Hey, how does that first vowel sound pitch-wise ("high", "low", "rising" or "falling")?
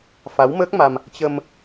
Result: rising